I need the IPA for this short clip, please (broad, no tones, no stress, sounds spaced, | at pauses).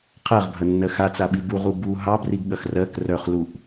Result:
qʰ ɜ ʁ bʱ ɐ nː ɜ x a t͡s a ɓ i b u ʁ u b u ɦ ɑ b r i ɡ ɠ ɐ x r ɜ k r œ χ l u ʔ